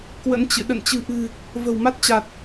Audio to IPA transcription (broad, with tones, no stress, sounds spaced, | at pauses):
k w ə̰˧˥ n t͡ɕ ɨ̰˧˨ ɗ ə̰˧˨ n t͡ɕ ɨ̤˨˩ ʔ ɨ̤˨˩ | v ə̤˨˩ w m a˦˥ t̚ t͡ɕ a˨˩ t̚